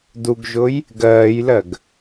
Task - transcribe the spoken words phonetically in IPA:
duɡʒʊj | ɡɜːjlɜɡ

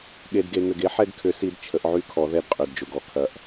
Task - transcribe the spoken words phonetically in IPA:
ɠe˨dɡe˨ŋʏ˨ɡ e˦ħɛ˦˨ɡkʰʏ˨˦si˨˦d t͡ʃʰə˨˦ʔʕy˦kʰɔ˨˦ ðɛ˦˨dqʼy˨dd͡ʒʊ˨ɡɔ˨ kʰɐ˨ʔ

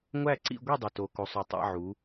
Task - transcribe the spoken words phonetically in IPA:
ŋʷæ˥˧ǀḭ˥˧ɡʷi˥˧ dˤu˨to˨˦ko˨˦sˤo˨˦ tˤæ̰˥˧ʕu˨˦

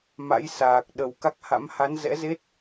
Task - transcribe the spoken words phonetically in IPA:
ma̰˧˥jsaː˨˩k̚ɗə˨˩w ka˦˥k̚ha̰˧˥m ha˨˦nzɛ̰˧˥ze˦˥t̚

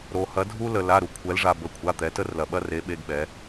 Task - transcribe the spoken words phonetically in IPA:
ɾo˩hɐ˩˧ dʱu˧lə˩ la˩˧˩ɾu˩kʷʰɛ˩˧lʐa˩ bə˩˧˩kʷʰa˩˧˩t̪ɛ˩˧ tə˧rlɐ˩ɓɐ˧re˩˧ ɓe˩˧˩ɡɓɛ˩˧

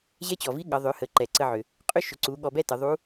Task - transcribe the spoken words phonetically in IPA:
ʑɛ˧˥t͡ɕɔ˩vi˧˥ ɠʌ˩˧ ðˤʏ˩˧ hə˩˧ ǃɛ˩ ǀə˧ʕʏ˩ | qʼʏ˥ ʃʏ˩˧ǀu˩˧ ɠɔ˧bɛ˥ tə˩˧ðˤu˧˥

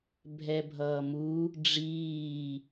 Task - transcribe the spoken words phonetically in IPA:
bʱɛbʱʌːmu | ɖ͡ʐiː

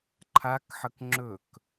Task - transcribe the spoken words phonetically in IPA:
ǃʰakħək ŋ͡ǁɵk

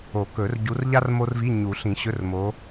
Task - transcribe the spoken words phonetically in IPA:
o˨˩˦kɵ˨˩˦r ɟu˨˦r ʎa˥r mo˥rvi˧˥˧ ɲu˨˩˦ɬĩ˨˩˦ɕɵ˧˥˧rmo˨˦

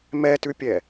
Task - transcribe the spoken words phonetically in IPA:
mɛtʉpʲɛ

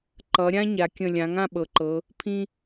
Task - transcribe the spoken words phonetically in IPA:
ǃʌ˩˧ ɾʲã˥ɲa˩˧kʲə̃˧˩ lʲã˩˧ŋã˥˧ɓɤ˩˧ǃɤ˩˧ | pʰĩ˧

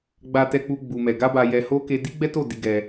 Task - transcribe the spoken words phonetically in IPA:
ɡ͡ba˦tɛ˦k͡pu˦ ɡ͡bu˧mɛ˧ ɡa˦ba˧jɛ˧ho˦ ke˧di˦ɡ͡bɛ˦to˦˨ di˨˦ɡɛ˧

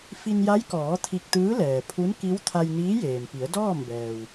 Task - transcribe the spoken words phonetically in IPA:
fi˧nja˧˥jkɔː˩˧ t̪ʰi˧k̚t̪ɯː˧˥ lɛː˩pʰu˧˥nki˧˥w t̪ʰa˧jniː˧˥jeː˩m pi˩˧ə̯dɔː˥˨mbɛː˩w

